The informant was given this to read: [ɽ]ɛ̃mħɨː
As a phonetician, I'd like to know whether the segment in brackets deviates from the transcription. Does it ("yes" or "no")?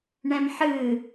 yes